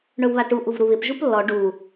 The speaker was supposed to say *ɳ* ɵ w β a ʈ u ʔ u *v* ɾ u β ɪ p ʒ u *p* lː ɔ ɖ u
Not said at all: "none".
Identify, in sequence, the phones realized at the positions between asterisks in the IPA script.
ɳ, v, p

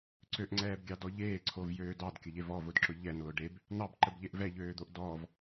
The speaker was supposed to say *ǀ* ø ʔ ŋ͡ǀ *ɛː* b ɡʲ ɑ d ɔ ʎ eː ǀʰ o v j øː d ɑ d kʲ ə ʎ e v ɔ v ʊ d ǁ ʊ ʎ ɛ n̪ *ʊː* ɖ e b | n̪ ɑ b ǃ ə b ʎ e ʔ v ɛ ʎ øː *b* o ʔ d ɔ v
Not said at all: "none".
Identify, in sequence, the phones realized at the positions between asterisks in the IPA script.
ǀ, ɛː, ʊː, d̪

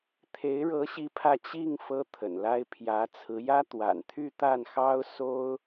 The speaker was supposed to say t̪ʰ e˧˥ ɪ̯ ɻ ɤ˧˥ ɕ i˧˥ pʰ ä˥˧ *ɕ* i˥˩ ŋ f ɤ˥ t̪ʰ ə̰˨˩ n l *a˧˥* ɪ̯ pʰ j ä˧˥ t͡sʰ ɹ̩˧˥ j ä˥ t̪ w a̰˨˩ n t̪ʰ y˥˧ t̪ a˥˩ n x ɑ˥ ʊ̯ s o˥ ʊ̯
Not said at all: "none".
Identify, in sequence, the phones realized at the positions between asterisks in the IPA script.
t͡ɕ, a˥

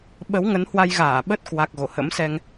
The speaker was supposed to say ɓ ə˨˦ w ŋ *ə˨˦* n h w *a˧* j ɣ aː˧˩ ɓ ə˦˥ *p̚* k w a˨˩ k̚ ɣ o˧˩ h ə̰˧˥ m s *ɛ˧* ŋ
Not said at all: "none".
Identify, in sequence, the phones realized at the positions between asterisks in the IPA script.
ə˨˦, a˧, t̚, ɛ˧

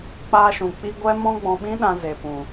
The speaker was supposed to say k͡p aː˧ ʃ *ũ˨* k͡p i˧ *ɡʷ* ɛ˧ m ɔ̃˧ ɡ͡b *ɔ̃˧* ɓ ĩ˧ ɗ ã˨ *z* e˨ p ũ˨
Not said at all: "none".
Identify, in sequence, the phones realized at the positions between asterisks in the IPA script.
ũ˨, ɡʷ, ɔ̃˨, z

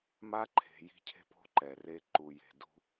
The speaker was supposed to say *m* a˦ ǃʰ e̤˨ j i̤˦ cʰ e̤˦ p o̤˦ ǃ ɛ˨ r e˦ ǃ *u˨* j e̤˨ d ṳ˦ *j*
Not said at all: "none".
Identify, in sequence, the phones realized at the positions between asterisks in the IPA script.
m, u˨, none

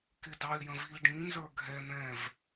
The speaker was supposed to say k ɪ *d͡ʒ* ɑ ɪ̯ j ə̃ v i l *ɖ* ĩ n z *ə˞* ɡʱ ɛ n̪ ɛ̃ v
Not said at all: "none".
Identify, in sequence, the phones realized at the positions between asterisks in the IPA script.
d, ɖ, ə˞

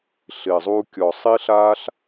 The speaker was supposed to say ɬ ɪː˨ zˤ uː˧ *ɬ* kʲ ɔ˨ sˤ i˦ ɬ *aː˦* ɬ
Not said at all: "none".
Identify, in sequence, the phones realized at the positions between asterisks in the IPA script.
none, aː˦

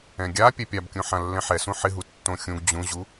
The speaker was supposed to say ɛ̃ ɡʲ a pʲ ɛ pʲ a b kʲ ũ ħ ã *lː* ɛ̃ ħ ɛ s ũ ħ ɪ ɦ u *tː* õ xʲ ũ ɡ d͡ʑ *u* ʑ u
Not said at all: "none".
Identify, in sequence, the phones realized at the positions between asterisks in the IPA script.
lː, tː, ũ

